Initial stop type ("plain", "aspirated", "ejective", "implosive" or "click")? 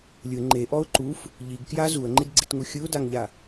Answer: click